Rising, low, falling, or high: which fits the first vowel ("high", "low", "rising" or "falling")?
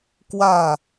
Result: falling